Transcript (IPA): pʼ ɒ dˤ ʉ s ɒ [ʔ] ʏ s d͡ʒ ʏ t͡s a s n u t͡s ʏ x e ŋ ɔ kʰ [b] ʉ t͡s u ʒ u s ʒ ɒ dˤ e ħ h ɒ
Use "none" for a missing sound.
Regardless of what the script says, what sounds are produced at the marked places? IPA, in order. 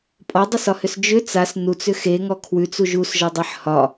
h, w

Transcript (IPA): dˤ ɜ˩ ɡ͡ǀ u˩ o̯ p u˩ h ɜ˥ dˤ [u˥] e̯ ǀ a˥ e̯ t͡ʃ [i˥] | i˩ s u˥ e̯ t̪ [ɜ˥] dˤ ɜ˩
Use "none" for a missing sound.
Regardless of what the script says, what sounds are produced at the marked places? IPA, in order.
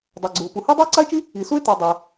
u˥, i˥, ɜ˩

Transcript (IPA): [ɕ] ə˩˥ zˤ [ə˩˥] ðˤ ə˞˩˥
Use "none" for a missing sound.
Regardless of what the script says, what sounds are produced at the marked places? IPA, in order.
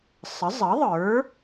sˤ, ə˩˥

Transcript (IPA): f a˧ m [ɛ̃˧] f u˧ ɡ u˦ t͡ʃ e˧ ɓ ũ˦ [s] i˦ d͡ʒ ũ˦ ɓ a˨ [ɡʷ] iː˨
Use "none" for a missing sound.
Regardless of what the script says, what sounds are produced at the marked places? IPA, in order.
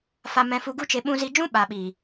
ɛ̃˧, z, ɓ

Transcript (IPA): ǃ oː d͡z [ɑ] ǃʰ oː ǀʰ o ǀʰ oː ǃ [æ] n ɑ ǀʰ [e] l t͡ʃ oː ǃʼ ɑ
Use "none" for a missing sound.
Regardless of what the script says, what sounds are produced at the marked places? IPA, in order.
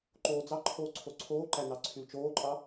ɑ, æ, y

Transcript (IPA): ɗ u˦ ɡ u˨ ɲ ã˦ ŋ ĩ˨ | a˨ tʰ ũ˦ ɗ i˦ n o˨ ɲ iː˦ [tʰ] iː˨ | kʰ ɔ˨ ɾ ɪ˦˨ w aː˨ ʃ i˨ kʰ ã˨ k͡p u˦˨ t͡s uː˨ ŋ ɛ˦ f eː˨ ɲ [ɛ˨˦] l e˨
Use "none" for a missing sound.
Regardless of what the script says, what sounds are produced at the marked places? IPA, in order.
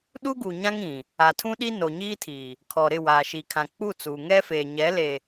tʰ, ɛ˨˦

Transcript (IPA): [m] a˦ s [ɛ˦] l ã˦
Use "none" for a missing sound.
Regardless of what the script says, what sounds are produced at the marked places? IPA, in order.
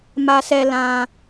m, ɛ˦

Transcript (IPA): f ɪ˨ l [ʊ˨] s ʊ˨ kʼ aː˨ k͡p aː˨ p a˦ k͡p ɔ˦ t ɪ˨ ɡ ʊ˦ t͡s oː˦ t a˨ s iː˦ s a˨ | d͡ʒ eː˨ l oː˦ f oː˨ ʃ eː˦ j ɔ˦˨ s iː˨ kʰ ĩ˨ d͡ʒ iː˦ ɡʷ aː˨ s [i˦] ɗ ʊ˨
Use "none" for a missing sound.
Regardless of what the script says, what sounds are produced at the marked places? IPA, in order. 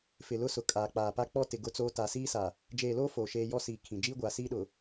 ʊ˦, iː˦

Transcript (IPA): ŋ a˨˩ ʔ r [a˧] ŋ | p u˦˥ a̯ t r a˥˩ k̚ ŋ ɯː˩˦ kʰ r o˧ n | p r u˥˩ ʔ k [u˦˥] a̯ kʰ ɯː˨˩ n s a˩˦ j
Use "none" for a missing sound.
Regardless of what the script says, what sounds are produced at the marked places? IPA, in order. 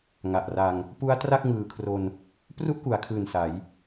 a˧, u˩˦

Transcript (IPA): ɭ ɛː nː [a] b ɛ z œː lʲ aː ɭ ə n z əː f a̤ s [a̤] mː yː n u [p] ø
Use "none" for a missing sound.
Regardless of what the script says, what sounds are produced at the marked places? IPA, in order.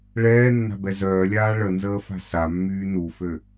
a̤, a, f

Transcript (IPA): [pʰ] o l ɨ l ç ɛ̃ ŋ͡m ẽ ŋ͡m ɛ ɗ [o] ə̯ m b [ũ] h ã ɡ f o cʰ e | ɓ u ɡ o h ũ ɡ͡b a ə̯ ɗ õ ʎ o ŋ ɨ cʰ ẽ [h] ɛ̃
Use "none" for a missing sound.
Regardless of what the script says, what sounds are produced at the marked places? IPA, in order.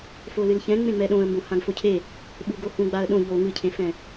f, õ, õ, f

